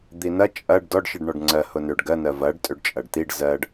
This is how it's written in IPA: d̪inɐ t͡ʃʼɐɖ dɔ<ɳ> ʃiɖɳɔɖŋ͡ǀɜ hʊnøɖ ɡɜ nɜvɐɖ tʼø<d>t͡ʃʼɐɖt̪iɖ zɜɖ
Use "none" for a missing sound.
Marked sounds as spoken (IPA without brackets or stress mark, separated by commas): ɖ, ɖ